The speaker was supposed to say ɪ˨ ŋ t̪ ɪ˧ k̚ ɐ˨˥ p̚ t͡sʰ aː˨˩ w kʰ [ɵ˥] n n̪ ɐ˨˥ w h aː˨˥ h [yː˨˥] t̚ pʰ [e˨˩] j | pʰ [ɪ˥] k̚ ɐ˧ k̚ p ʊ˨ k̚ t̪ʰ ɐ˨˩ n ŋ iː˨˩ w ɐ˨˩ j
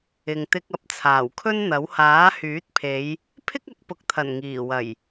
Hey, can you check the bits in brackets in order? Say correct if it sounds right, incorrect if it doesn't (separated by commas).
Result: correct, correct, incorrect, correct